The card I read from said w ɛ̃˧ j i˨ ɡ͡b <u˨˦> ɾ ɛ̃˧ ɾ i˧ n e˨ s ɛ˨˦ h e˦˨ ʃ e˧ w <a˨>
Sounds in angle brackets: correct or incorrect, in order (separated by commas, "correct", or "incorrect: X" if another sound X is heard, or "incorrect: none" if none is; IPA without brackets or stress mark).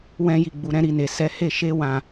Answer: incorrect: u˨, incorrect: ã˨